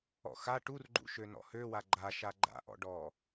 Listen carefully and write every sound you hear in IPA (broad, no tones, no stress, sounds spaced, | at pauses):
ɔ̰ x a ʈ u r ɡ͡ǃ ṵ ʃ ø n ɔ̰ h ø w a ɡ͡ǃ a ʃ a ɡ͡ǃ a̰ ʔ ɔ̰ ɖ ɔ